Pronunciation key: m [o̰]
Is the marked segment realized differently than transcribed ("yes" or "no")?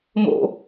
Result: no